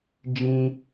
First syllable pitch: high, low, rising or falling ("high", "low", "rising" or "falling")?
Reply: high